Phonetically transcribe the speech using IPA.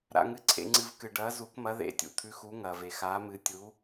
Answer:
ɾa̰˩ŋɨ˩ǀʰḛ˩ŋ͡ǀɨ˩v kɨ˩ɖɐː˩˧zu˩˧kmɐ˩˧ ðḛ˩˧tʲṵ˩ t̪ʰʉ˩˧xu˩˧ ŋɐː˩ve˩xaː˩˧mɨ˩˧ tʲu˩˧

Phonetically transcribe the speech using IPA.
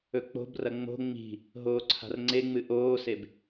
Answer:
ɵk͡po̤brɐ ŋ͡mo̤ ŋ͡mi̤ | ɦoːǀʰa̤rŋ͡ǀeŋ͡mɨ ʔoːseb

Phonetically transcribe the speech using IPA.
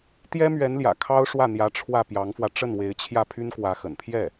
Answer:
t̪jɛ˥mɥɛ˧˥nljä̰˨˩ kʰɑ˥ʊ̯ ʂwä˥˩n̪jä˧˥ ʈ͡ʂʰwä˥˩pjɑ˧˥ŋfwä˧ ʈ͡ʂə˥˩nwe˧˥ɪ̯t͡ɕʰjä˥˩ pʰy˥nkwä˧˥xə̰˨˩n pʰjɛ˥˩

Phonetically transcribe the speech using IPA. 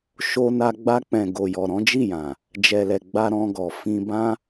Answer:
ʃo˧na˧ ɡ͡ba˧k͡pɛ̃˨ ɡo˨jɔ˨ ɾɔ̃˨˦d͡ʒi˦˨jã˨ | d͡ʒɛ˨lɛ˨ ɡ͡ba˧ɾɔ̃˧ɡɔ˨ fĩ˧bã˦

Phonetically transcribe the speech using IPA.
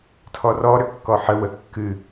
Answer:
tʰɔrɔ ɾʏkːɔħə wəkːɨ

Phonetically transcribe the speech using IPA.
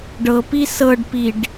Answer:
ɖɤpi sɤɖpiɖ

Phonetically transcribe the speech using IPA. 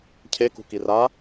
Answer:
cʰekṳki ra

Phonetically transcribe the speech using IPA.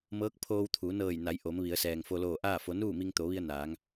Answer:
mɤː˧˥k̚pʰoː˧wt̪ʰuː˩˧nɤː˧˩j na˩˧j ʔo˩˧mʋi˩˧ə̯ sɛː˩ŋfo˧loː˧˩ ʔaː˥˨fo˩˧ nuː˥˨mi˧ŋt̪o˩˧ʋi˧ə̯ naː˩˧ŋ

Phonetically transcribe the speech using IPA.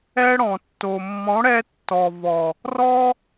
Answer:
ɛ˦ɽɔ̃˨ tːo˨mːɔ̃˨˦ɽɛ˧tːɔ˨ vɔ˨ | rɔ˦

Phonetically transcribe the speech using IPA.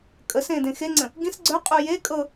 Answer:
kʼəsẽ dẽxeŋ͡ǀə̃ | ɡĩs ɡ͡ǀœqʼu je kʼɤ

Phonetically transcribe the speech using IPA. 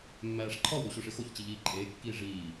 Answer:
mːæːʂǃʰɒwɾu ɕoʂexoçt͡ɕi ʎiːǃʼeːkːiː ʐiː

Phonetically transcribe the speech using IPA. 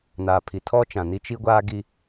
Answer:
naː˨pʰi˨tʰɔ˦ t͡ʃã˨ni˦ t͡ʃi˦ɡʷaː˦ ɡi˦

